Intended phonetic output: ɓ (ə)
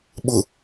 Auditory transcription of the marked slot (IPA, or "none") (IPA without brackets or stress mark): ʊ